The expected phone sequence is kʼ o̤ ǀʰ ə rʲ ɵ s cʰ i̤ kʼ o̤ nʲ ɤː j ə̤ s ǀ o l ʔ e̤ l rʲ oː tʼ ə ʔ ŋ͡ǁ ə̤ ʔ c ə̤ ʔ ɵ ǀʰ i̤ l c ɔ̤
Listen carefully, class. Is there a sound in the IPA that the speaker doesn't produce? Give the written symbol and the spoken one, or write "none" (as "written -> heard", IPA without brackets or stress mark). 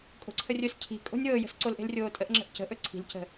ɔ̤ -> ə̤